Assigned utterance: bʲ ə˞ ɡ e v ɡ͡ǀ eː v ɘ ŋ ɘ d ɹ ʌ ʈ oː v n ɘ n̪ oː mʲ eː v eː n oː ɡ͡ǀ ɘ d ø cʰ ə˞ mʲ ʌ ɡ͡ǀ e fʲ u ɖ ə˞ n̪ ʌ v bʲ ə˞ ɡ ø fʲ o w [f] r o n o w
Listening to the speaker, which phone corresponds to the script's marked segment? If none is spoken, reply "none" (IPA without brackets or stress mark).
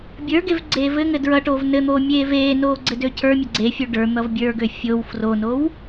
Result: f